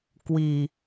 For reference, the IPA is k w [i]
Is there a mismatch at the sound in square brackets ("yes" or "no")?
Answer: no